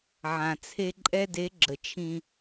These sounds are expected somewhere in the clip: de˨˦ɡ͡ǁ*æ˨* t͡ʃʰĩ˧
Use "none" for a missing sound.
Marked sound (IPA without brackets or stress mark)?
ə˨